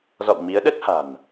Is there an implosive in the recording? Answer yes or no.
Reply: yes